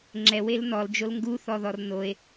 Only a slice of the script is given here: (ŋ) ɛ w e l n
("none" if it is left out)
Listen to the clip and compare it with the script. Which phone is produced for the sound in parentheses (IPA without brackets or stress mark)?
ŋ͡ǁ